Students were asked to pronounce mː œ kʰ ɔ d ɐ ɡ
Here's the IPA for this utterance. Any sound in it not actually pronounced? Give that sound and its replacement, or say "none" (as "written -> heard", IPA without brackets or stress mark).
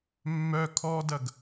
none